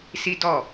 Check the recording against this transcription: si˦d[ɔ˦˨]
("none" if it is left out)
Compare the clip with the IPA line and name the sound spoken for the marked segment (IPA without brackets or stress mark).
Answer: ɔ˦˨